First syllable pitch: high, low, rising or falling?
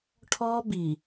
high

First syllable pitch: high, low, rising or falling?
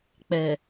low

